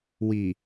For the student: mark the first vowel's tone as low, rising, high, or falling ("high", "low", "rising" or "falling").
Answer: low